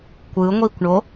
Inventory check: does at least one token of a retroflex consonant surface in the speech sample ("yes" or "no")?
yes